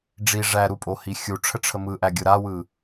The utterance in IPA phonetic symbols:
ɖ͡ʐi ʐæ ɾupʼohi xʲuʈ͡ʂʰəʈ͡ʂʰə mɯʔæɡʲɯ ɾawɯ

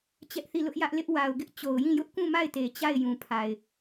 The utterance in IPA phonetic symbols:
t͡ɕɛ˦ʔθi˦˨lʊ˦ʔjä˦ʔ lɪ˦ʔwa˨ʊ̯ɡɪ˦ʔ t͡ɕo˨ʊ̯jĩ˦˨ jʊ˦ʔkũ˦˨ma˦˨ɪ̯te˨ t͡ɕa˦˨ɪ̯jũ˨ pʰa˨ɪ̯

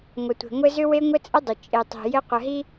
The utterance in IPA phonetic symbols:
ŋʷə˨tʷe̤˨ŋʷɘ˦ zʏ˦we˦ŋʷɘ˦t͡sʼə˦ dˤʏ˨ t͡ʃʼe˨tˤi̤˨ jɘ˦qʷə˨ɦi˦

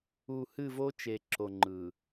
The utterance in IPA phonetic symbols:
u˨ hɨ˦˨vo˦t͡ʃe˨ ǁo˨ŋ͡ǃɯ˨

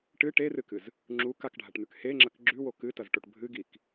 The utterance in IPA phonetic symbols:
ʈɨ ʈerɨkɨz | ŋ͡ǁu kakɖʱaʈn̪ʉk heŋ͡ǁɐk ɡ͡ǁʉwo kɨtɐzʈoʈ bʱɨɡik

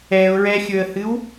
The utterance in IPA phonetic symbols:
ɛʊ̯ɹɛxʲɵə̯hɨw

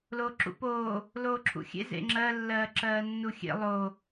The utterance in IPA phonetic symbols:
loːǁṵpoː | loːǁʰṵxʲḛ zḛŋ͡ǁɜ lːɜːǁɜːnːuxʲḛ lˠo

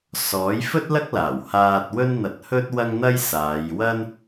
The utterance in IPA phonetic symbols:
sɔː˨˥jfɵ˥t̚lɐ˥k̚laː˨˩w haː˧t̚ wɵ˥nn̪ɐ˧t̚ hɵ˥t̚wɐ˥ŋn̪ɐ˥j saː˨˧jwɐ˥n

